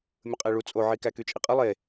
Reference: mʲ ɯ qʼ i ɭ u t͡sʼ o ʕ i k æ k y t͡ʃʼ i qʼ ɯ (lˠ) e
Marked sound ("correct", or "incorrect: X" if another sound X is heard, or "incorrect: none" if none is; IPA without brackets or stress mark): correct